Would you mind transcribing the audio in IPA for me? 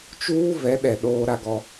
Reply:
t͡ʃ uː˦ v ɛ˨˦ ɗ ɛ˨ ɗ oː˦ ɾ a˦ ɡ ɔ˦

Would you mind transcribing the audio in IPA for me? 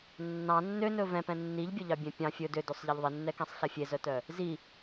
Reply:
nː ɑ̃ nː ø n ɵ v ɛ̃ p ɛ̃ nː i ʎ bʲ o ʎ ɑ bʲ ɛ̃ pʲ ɑ̃ fʲ ɵ d ø d o sˤ ʎ ɛ ʎ ðˤ i nː ɛ k ɛ̃ sˤ ɬ ɛ fʲ e z œ t œ | z i

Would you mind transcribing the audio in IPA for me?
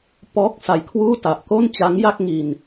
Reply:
p ɔː˦˥ k̚ s a˨˩ j kʰ w uː˥˩ t a˨˩ ʔ k o˥˩ n t͡ɕ a˦˥ ŋ j a˥˩ k̚ ŋ i˧ n

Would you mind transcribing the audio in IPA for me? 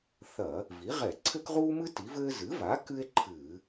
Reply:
θ ɐ˧˩˧ | v i˩˥ ʁ ɛ˧˩˧ ǀʰ ɘ˥ k ʁ uː˥ m ɨ˥ t i˩˥ v ɘː˥ z ɨ˩˥ v a˩˥ k ɨ˥ e̯ ǃʰ ɨː˧˩˧

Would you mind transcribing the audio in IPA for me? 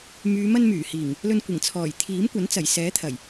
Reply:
m yː˨˧ m ɐ˧ n m yː˨˩ h iː˨˩ ŋ | l ɵ˧ n kʷ ɪ˨˩ ŋ t͡sʰ ɔː˨˩ j t̪ʰ iː˨˥ m kʷ ɐ˨˥ n t͡s ɐ˨˩ j s ɛː˨˥ t̪ʰ ɐ˨˩ j

